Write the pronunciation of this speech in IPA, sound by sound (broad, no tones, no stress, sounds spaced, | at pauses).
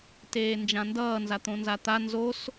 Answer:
t eː n d͡ʒ ã n d ʌː n z a t̪ õ n z a t̪ a n z o s